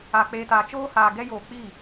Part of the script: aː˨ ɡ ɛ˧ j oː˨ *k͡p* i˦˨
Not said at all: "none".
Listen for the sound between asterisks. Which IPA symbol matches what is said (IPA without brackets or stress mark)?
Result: k͡p